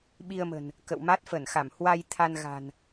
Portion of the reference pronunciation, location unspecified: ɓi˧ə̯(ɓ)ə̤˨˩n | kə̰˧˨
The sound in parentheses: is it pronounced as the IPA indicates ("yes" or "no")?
no